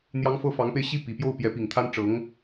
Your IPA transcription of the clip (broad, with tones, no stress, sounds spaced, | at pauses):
n̪ j ɑ˥ ŋ f ɤ˥ f ɑ˧˥ ŋ p e˥˧ ɪ̯ ɕ i˥˩ p i˨˩ p j o˥˩ ʊ̯ p j ɛ˧˥ p i˨˩ ŋ t̪ʰ a˥ n ʈ͡ʂ ɤ˧˥ ŋ